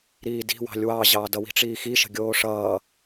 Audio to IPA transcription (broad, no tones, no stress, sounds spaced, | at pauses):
ɾ iː d i̤ w ɑ̤ lʲ w ɑ ʑ ɑː d ʌ w i̤ ʈ͡ʂ iː x i ʃ ə̤ ɡʲ oː ʂ ʌː